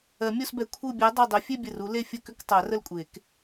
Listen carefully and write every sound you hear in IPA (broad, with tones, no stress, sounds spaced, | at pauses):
ɜ˨˩˦ mʲ o˥˧ s b ɛ˧˩ kʷʰ ɯ˧˩ bʲ a˨˦ dˤ u˧˩ dˤ ʏ˨˦ fʲ e˥˧ bʲ ə˧˩ r u˨˦ l e˥˧ fʲ ə˥˧ k ʏ˥˧ k tˤ a˨˩˦ r ə˥˧ l kʷʼ e˨˩˦ k